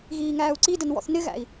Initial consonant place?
velar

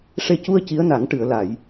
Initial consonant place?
retroflex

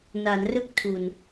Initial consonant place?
alveolar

